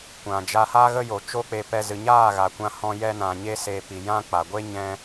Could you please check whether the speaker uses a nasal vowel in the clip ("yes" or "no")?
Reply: yes